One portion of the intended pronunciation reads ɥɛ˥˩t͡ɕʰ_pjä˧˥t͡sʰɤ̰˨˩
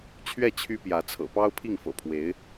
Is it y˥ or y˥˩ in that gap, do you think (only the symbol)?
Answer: y˥